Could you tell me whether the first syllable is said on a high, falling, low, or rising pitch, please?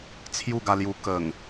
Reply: falling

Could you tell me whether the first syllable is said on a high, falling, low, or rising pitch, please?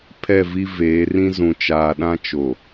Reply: falling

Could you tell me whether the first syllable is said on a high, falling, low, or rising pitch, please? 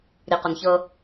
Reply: low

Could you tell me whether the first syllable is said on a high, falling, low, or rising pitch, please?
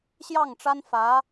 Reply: falling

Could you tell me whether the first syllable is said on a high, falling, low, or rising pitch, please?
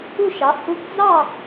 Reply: falling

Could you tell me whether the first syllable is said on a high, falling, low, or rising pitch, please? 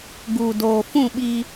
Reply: low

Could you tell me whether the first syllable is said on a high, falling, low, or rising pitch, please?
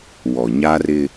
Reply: low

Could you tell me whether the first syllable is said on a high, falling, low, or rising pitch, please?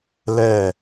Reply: falling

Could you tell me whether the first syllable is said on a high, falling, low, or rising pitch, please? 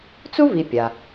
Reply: high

